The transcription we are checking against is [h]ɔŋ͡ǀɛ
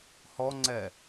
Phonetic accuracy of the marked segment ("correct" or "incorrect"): correct